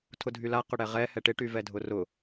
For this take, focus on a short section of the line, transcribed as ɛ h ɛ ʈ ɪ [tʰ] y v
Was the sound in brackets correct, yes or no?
no